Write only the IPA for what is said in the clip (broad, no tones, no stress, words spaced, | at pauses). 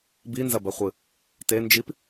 binzɐbɐχʷɨ | tend͡ʒip